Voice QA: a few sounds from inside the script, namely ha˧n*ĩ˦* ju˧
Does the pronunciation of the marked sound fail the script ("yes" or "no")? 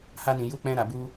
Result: yes